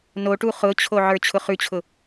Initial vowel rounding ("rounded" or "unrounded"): rounded